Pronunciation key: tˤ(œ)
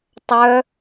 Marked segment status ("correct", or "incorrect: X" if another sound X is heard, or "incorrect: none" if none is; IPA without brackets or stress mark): correct